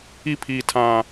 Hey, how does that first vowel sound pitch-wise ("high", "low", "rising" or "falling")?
high